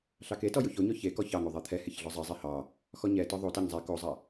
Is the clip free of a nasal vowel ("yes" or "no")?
yes